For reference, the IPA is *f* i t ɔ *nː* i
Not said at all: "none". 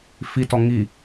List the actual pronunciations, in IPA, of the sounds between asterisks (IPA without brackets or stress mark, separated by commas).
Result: f, ŋ